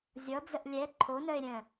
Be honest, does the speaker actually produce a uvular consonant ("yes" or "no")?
no